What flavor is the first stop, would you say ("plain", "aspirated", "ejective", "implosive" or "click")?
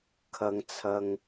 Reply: aspirated